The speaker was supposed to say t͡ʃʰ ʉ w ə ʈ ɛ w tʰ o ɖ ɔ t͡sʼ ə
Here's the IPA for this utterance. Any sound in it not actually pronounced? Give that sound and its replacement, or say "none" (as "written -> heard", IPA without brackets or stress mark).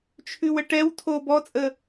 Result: ɖ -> b